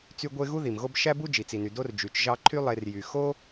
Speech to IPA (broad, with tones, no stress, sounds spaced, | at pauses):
t͡s y˦ ɡʷ e˦ ɣ u˥ ð i˩ m ɣ o˦ b ʃ æ˥ b u˥ d͡ʒ i˩ t͡s i˩ n y˩ d o˦ r d͡ʒ y˩ t͡ʃ ʒ ɑ˦ ǃʰ y˥ lˠ e˨ r j y˩ x o˦